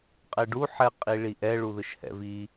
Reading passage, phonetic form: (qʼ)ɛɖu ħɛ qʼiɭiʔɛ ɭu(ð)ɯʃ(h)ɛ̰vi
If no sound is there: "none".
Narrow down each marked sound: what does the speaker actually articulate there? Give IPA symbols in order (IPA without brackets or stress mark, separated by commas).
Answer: qʼ, ð, h